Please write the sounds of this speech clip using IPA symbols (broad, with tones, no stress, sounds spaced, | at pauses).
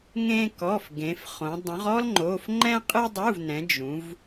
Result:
ŋ ẽ˥ k ɔ˧˥˧ f ɡ ẽ˨˦ f χ õ˨˦ dˤ ũ˨˦ ʁ ɔ˥ l ŋ͡ǃ o˧˥˧ f ŋ͡ǃ ɛ̃˥ qʼ ɨ˥ dˤ u˧˥˧ v n ɛ̃˨˦ d͡ʒ ũ˨˦ v